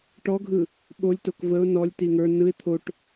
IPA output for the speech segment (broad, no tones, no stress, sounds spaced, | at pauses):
ʈ ɔ ɡʱ ɯ | ɓ o lʲ t o k v ə ʊ̯ n ɔ lʲ t i ŋ ə˞ n ɯ ɪ̯ t̪ʰ o ʈ